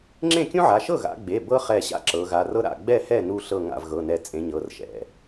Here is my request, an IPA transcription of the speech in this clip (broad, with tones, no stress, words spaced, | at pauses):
ŋ͡ǁẽ˥˩ kʲũ˥ʕa˩˧˩ ʃɤ˥˩ɣa̰˩˧ɡ͡be˩˧˩ bɤ˥ χɛ˧˩ɕa̰˥ ǁɤ˩˧ɣa˩˧˩r ɤ˥ɾa̰˥˩ ɡ͡bɛ˥˩hɛ˥˩nu˧˩ɬɤ˧˩ ŋa̰˧˩vɣɤ˩˧˩nɛ˧˩ t͡sʼẽ˩˧ ɲɤ˩˧˩rʃɛ̰˩˧˩